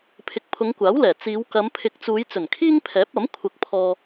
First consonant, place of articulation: labial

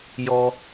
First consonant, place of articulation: palatal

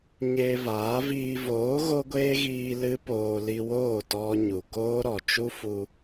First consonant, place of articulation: palatal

